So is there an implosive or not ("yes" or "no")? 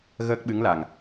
yes